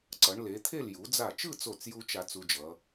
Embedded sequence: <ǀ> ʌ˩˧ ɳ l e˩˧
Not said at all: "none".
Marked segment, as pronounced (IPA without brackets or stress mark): ǀ